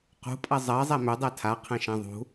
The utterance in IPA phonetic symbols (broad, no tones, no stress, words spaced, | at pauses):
qṳpʼɐ zˤɜzˤɛ mødˤɛ tʰaqʰɛ̃ʃɛ̃ ðˤṳ